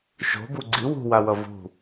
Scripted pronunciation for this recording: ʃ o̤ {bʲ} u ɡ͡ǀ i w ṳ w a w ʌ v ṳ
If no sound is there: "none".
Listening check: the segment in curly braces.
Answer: b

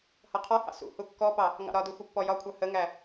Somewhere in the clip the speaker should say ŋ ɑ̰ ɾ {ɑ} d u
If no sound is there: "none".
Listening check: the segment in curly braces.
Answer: ɒ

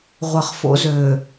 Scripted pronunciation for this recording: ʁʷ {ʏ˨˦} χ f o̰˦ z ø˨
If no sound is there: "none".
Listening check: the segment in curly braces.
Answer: ə˨˦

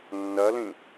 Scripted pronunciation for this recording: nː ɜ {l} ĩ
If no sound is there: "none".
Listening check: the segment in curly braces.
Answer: l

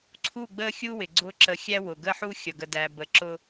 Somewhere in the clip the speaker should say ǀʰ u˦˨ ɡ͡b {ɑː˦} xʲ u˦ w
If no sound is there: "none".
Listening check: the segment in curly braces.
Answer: əː˦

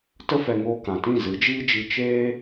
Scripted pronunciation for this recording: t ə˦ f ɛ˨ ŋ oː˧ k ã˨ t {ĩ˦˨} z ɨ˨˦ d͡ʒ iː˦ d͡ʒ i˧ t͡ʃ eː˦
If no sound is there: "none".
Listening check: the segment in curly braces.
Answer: ĩ˦˨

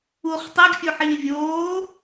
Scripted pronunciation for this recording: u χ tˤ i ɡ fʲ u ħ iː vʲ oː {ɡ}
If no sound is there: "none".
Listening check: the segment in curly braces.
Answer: none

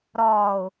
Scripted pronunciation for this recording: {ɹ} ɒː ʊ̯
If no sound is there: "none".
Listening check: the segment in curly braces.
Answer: ɾ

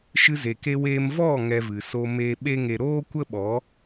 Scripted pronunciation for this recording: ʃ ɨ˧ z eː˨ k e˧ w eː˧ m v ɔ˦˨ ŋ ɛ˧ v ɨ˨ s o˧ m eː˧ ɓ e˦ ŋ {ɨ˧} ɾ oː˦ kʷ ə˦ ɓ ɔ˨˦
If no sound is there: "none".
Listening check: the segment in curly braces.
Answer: e˧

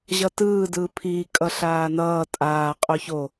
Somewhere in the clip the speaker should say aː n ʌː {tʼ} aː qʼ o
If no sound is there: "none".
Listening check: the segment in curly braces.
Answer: tʼ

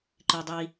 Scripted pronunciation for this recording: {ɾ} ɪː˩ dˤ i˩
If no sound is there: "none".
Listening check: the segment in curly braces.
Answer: ǃ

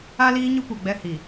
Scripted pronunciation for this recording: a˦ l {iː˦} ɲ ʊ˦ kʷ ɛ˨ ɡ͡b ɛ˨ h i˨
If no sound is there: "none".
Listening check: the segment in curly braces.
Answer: iː˦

